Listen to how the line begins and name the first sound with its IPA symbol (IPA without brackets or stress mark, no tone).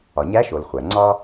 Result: ɒ